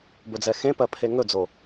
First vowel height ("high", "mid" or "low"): mid